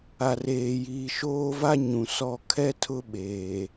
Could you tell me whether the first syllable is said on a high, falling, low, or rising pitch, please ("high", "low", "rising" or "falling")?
low